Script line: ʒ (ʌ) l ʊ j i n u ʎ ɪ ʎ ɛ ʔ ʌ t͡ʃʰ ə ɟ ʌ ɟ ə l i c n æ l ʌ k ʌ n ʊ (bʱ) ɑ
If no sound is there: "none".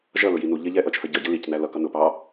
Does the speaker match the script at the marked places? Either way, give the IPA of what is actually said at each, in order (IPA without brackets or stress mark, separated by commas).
ʌ, p